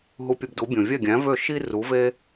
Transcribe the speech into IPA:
ɦ u˧ pʲ ɵ˧ b d u˩˥ bʲ õ˩ vʲ ɛ˥˩ ɡʲ æ̃˩˥ v ø˥˩ ʃ i˥ r u˩˥ v e˥

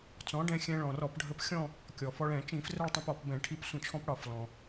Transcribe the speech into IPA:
t͡s ɔ̃˩˥ ɖ ɛ̃˧ xʲ ɛ̃˧ ɭ ɔ̃˩ r ɔ˧˩˧ p ɖʱ ə˧ p xʲ ɔ̃˥˧ | kʲ ɔ˩ f ɔ˧ ɭ ɛ̃˧˩˧ t͡ʃ ĩ˧˩˧ f r ə˥˧ ɭ tˤ ĩ˧ p ɔ˧˩˧ p b ɛ̃˧˩˧ ʈʰ i˧ p sʷ ə̃˧˩˧ t͡ʃʰ ɔ̃˧ p ɽ ɒ˩ f l ɔ̃˩

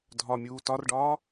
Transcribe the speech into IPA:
dʱ ɒ mʲ uː t ɒ r ɖ ɒː

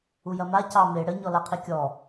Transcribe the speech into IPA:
u j ɐ m a c ɑ m e ɽ ə ɲ ɔ l a qʰ i kʲ ɔ

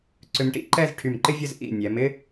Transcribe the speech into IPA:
ǀ ʏ˧ m ʈ ḭ˥˧ ǃ ɛ˥˧ z ʈʰ y˧˩ m ǃ ɪ˥ vʲ ə˥˧ z ʔ ḭ˧˩ nʲ ɛ˩˧ m ɪ˥

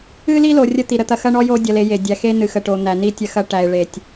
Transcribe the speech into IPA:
ɨ˦ l i˦ l o˨ rʲ ə˦ t̪ i˨ ɾ ə˦ t̪ ɐ˨ x ɐ˦ ɳ ɔ˦ j o˦ dʲ ɐ˨ l e˨ j e˨ dʲ æ˨ x e˦ n ɨ˨ x ə˨ ʈ o˨ n̪ æ˨ n i˦ tʲ ɐ˦ x ɐ˦ ʈ æ˨ ɪ̯ ɭ e˨ tʲ

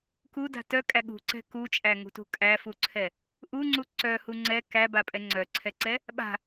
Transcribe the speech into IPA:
k u d a̤ t œ kʼ æ ɠ ṳ ǀ ɛ̤ k u t͡ʃʼ æ ŋ ṳ t ṳ kʼ æ f u ǀʰ ɛ | ʔ u ŋ͡ǀ u ǀ œ h u ŋ͡ǀ ɛ k æ b a pʼ ɛ ŋ͡ǀ œ ǀʰ ɛ ǀ ɛ | ɓ a̤

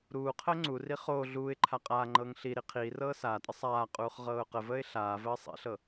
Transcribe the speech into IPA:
ɾ uː qʰ əː ŋ͡ǀ u r i χ oː ɮ uː ɪ̯ ǃʰ a qʼ aː ŋ͡ǃ ɤː ŋ ɬ i ɾ i qʰ iː r ɤː s aː tʼ ə sˤ aː qʼ uː χ ʁ ɤː ʊ̯ q ə v əː ɪ̯ ɬ aː v əː sˤ ḭ ɬ ɤ

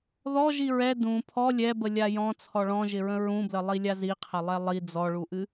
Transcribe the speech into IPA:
ð ɔ ʒ i ɹ ɛ d ũ pʰ ɔ lʲ ɛ b ə lʲ a j ɔ̃ t͡sʰ ɔ ɭ ɔ̃ ʒ ɪ ɹ ə̃ ɹ ũ b l ə lˠ i lʲ a z i qʰ ɐ lˠ ɛ lˠ i d͡z ɔ ɭ u ʔ ɨ

